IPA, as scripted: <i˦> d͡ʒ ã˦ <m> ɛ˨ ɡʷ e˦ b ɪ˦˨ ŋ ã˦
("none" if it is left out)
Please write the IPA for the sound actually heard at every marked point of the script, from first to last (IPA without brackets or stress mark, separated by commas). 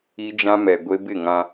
i˦, m